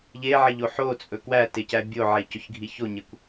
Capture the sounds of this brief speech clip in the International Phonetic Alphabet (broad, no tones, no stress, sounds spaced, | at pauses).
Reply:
ʎ e ʕ e ʎ o ħ o t͡sʼ ɵ k w æ t e c æ bʲ o ʕ e c ɵ ç ɡʱ i ç o ɲ e kʷ